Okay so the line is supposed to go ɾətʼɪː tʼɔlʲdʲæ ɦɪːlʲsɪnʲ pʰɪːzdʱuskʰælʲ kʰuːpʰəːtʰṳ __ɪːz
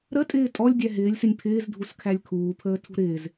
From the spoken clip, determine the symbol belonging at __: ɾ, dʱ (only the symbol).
ɾ